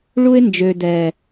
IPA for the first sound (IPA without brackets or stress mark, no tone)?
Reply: ɭ